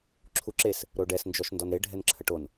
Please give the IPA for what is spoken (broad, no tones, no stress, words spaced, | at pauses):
ǁʰuǁes | ɾoɖɛsnd͡ʒɔʃ ndɔnɾe ɖʱɛnǁʰəʈon